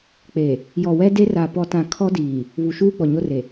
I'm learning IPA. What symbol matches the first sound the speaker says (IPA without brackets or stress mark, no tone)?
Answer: k͡p